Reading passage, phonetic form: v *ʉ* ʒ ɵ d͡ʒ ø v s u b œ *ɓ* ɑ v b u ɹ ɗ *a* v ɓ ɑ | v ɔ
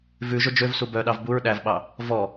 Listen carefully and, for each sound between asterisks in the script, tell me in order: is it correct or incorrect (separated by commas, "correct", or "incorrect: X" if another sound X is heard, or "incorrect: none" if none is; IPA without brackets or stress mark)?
correct, incorrect: ɗ, incorrect: æ